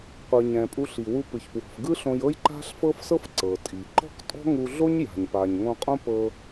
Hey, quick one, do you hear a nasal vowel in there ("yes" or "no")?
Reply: yes